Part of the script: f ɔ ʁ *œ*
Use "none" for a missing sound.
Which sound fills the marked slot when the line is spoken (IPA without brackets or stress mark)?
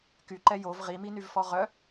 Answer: œ